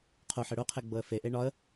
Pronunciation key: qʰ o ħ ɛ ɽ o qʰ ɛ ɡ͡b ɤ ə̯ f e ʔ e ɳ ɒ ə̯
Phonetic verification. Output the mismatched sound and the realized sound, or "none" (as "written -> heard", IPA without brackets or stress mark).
none